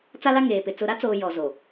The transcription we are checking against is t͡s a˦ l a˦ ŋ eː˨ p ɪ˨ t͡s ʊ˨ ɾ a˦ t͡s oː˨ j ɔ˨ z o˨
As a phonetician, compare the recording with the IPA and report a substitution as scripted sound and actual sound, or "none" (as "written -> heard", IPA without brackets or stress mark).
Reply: none